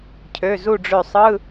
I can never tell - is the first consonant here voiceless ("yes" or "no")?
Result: yes